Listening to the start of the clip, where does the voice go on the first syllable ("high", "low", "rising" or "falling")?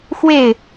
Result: falling